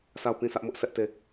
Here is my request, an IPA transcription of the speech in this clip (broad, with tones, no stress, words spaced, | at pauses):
sa˦˨ʊ̯pĩ˦˨ sʰä˦ʔmʊ˦ʔsɛ˦ʔ te˦˨